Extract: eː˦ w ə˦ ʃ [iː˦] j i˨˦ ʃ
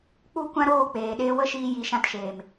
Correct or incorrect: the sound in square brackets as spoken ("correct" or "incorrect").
incorrect